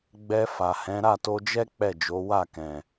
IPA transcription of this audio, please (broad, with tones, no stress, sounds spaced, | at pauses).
ɡ͡b ɛ˧ f a˨ h ɛ̃˨˦ ɾ a˦˨ t o˧ d͡ʒ ɛ˦ k͡p ɛ˦˨ d͡ʒ o˨˦ w a˦˨ k ɛ̃˨